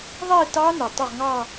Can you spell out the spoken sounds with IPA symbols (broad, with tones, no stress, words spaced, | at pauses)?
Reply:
ðˤi˥˧tɑ˦˥ nɯ˩tˤu˥˩ʁŋɑ˥˧